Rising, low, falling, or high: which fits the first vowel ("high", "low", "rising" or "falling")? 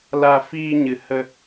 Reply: low